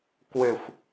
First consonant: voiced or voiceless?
voiceless